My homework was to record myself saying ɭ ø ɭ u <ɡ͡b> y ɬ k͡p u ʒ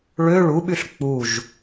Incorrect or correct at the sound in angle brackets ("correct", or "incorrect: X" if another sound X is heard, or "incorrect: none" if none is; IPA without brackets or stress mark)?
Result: incorrect: ɓ